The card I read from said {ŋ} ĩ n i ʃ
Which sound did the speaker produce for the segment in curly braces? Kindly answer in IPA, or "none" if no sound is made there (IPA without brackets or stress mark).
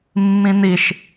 mː